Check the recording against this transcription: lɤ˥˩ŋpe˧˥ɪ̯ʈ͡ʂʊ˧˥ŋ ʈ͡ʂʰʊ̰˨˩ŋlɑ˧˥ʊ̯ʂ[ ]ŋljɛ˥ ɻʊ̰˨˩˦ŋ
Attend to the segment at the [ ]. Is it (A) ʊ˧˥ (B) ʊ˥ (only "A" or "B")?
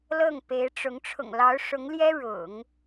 A